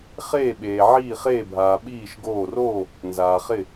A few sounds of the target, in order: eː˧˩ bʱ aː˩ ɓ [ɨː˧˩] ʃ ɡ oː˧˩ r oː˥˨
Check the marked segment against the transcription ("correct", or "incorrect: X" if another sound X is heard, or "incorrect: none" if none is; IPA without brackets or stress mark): incorrect: iː˧˩